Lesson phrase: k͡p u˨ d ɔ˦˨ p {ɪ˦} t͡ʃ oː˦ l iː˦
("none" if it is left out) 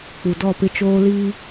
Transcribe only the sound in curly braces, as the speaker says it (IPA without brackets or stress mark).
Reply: ɪ˦